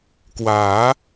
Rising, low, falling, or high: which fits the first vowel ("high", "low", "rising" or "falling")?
rising